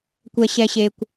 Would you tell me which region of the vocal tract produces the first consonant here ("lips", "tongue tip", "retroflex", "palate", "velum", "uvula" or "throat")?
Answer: velum